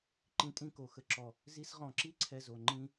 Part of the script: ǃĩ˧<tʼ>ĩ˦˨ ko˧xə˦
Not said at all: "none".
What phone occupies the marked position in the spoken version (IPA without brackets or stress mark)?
tʼ